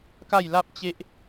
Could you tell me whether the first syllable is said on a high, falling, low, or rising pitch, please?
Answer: falling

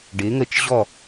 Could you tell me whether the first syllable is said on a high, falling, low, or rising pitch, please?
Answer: rising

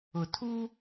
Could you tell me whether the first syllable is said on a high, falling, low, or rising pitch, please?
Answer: low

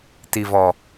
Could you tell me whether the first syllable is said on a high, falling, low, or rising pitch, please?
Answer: low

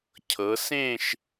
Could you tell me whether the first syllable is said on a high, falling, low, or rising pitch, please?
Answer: rising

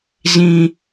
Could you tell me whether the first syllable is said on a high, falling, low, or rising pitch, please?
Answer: high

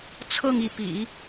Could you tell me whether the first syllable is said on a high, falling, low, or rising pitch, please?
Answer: falling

